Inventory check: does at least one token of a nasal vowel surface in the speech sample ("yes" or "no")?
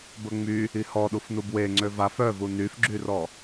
no